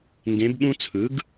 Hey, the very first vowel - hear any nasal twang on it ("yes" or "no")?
yes